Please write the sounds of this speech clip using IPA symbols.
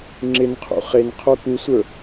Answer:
ŋ͡ǁɪnqʰṵ χenqʰo kusʷə˞

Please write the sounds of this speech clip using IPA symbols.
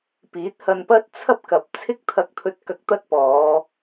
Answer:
piː˨˥t̚hɐ˧npɐ˥t̚ t͡sʰɐ˥p̚kɐ˨p̚ t͡sʰɪ˥k̚t̪ʰɐ˧k̚t̪ʰɵ˧t̚ kɐ˧k̚t̪ɐ˥t̚ pɔː˨˧

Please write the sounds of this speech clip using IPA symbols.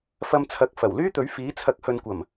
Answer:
fɐ˧mt͡sʰɐ˨˥k̚ fɐ˨˩w lyː˥t̪ɵ˨˥ɥ fiː˨˥ t͡sʰɐ˨˥k̚hɵ˨nkʷɐ˨˩m

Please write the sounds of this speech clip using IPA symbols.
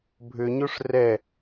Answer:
bʱʏɲoʂ rɛ

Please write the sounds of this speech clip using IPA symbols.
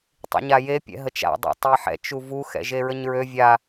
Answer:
tˤḭɲaje pʲɛ̰ɦət͡ʃa̰ dˤɛ̰tˤeħɛ̰ t͡ʃuvu xɛ̰ʒeɹəɲɹø vʲa

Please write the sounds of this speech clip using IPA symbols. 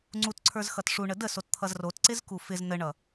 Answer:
ŋ͡ǀutǀʰə˞zxʌt ʂuɳə dəsott̪ʰʌz rotǀɪzku fɪz nəɳʌ

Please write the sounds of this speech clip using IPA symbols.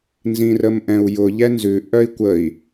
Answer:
nzĩrəmʔɛ̃u̯jʊ ʎɛnzʉ ʔœi̯kʷəi̯

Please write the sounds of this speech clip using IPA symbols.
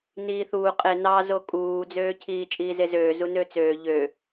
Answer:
niːθuː qʼe nɑzo kʼuːd͡zøːcʰiː t͡ʃʼiːzezøː zunøt͡søː ʎø

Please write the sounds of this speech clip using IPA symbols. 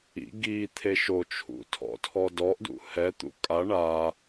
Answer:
ḭ ɡi t̪ʰeʃot͡ʃʰṵ tʰɔ̰tʰɔdɔʔdṵ hɛt̪ṵ kʼa ɳa

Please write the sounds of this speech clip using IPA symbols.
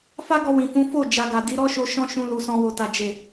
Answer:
fa˦ɡɔ˧ wĩ˨fũ˨˦fo˦˨ d͡ʒa˨ɡa˨ di˨˦ɾɔ˦ʃo˧ ʃɔ̃˧ ʃũ˧lu˨sɔ̃˧ wo˨ta˨ d͡ʒe˨

